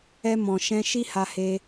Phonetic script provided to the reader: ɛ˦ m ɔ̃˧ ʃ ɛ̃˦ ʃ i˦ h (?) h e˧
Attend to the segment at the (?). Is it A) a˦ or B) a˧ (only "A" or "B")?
B